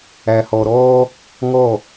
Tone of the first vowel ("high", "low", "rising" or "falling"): low